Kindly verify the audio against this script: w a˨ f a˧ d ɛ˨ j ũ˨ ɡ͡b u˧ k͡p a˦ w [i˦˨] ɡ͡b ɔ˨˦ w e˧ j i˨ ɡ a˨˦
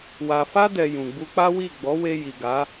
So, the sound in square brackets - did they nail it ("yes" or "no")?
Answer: yes